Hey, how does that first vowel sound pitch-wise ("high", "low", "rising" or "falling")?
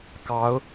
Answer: rising